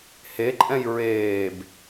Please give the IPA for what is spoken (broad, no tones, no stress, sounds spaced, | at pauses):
h e ǃʼ ɛ̃ j ɹ eː b